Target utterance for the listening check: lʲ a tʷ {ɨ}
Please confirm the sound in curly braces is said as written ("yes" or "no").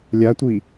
no